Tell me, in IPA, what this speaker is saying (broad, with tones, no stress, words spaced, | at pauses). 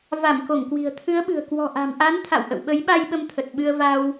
va˧˩mko˧˩ŋ kwi̤˨˩ə̯ t̪ʰɨ˨˦ə̯ɓɨ̤˨˩ə̯ kwɔ̤˨˩ʔa̤˨˩mʔa˨˦n t̪ʰa̰˧˨wʔə̰˧˨wɓə˨˦jɓa˧j ɓə˧mt̪ʰə˨˩t̚ɓɨ˧ə̯va˧w